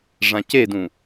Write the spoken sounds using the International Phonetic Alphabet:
ʐ ã c e d ũ

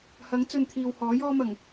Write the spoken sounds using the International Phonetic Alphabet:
h ɐ˨˥ ŋ t͡s ɵ˨˧ n t̪ʰ iː˨ w h ɔː˨˥ j ɔː˥ m ɐ˨˩ ŋ

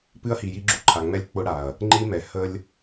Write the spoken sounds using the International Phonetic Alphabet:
p ɨ˦ ɐ̯ h i˨ j i˦ ɡ͡ǁ u˦ ǃʰ a˨ ŋ͡m ɛ˦ lʲ k͡p ʊ˦ ɽ a˨ ɐ̯ | ŋ͡ǃ i˦ m ɛ˨ h ə˧ lʲ

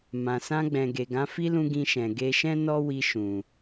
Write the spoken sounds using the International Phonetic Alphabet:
m ã˨ s ã˧ ɡ͡b ɛ̃˨ ɡ e˨ ɡ ã˨˦ f i˦ l ũ˧ ɡ ĩ˧ ʃ ɛ̃˨ ɡ e˧ ʃ ɛ̃˦ n ɔ˦ w i˧ ʃ ũ˨

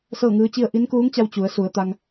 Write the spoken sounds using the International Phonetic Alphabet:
s ɤː˥˨ ŋ ɯː˧˥ t͡ɕ i˥˨ ə̯ ʔ i˧˥ n k uː˧˥ ŋ t͡ɕ a˧ w t͡ɕ u˩˧ ə̯ s u˩˧ ə̯ t̪ a˧ ŋ

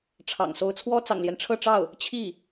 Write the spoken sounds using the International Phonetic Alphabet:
ʈ͡ʂʰ ɑ̰˨˩ ŋ s o˧˥ ʊ̯ t͡sʰ w ɔ˥ t͡s ɑ̰˨˩ ŋ l j ɛ˦ n ʈ͡ʂʰ ɤ˥˧ ʈ͡ʂ ɑ˥˩ ʊ̯ | t͡ɕʰ i˥˩

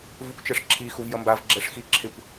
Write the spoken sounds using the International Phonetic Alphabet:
v u kʷ t͡ʃ ɛ ʂ ǁʰ i x u v j ʌ m b a v ɡ͡ǁ ɛ ʂ x i ǁʰ ɪ kʷ

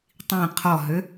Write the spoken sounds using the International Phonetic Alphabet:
tˤ ĩ qʰ ɔ ɦ ø

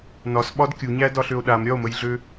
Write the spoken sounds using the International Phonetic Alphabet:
n ɒ s ɓ ɒ d kʲ u ɲ æ d ɒ ɬ ø o̯ ɗ a m ɾʲ ɒ o̯ m ə j ɮ ø

